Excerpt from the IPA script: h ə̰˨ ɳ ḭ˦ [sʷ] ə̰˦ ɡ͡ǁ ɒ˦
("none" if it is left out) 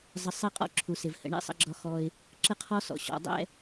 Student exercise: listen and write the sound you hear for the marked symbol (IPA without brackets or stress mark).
sˤ